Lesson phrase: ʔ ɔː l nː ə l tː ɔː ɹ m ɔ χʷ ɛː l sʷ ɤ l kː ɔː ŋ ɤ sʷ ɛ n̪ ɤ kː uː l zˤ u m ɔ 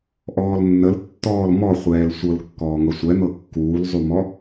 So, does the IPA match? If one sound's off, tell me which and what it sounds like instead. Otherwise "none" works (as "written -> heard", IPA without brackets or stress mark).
ɹ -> l